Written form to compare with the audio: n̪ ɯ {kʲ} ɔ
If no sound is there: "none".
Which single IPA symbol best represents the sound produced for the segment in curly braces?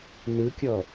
kʲ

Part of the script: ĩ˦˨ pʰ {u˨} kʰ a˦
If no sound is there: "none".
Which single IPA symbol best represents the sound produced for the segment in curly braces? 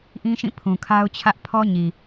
ũ˨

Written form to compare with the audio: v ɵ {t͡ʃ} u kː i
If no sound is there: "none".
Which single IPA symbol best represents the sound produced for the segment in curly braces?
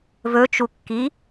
t͡ʃ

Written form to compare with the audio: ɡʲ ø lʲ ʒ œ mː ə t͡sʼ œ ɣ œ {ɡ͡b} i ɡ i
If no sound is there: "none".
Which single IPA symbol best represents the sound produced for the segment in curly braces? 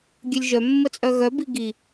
b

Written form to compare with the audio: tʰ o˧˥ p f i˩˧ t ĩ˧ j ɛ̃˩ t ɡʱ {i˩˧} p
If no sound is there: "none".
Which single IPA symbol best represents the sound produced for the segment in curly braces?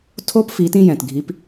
i˩˧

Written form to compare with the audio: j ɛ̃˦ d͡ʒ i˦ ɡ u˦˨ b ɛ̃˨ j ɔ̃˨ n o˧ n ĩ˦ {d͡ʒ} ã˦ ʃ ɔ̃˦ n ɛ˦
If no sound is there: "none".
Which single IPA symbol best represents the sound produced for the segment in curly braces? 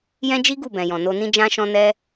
d͡ʒ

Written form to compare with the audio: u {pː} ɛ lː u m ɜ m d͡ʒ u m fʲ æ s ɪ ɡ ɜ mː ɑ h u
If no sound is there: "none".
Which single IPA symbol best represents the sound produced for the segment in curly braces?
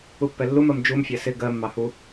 pː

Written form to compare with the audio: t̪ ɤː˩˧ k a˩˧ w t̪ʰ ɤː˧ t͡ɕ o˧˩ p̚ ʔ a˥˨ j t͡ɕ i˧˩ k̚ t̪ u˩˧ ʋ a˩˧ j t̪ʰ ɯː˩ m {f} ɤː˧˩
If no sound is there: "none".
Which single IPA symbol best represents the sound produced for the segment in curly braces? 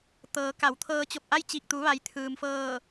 f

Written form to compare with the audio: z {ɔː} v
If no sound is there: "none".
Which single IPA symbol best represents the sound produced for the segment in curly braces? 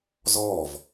ɔː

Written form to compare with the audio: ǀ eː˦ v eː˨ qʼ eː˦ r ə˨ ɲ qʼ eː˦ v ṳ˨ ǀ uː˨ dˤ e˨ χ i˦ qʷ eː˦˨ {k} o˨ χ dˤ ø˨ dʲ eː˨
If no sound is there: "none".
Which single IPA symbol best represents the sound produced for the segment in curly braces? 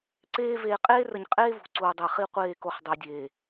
k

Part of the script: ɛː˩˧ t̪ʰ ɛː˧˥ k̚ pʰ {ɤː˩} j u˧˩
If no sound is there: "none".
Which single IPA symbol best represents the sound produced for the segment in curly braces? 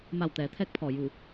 ɔː˩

